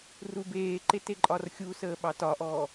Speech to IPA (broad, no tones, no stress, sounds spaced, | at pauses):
r u b eː ǃ e t e ǃʼ ɒ r xʲ u s əː ɓ ɑ t ɒ ʔ ɔː